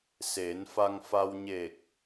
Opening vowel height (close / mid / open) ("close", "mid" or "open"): mid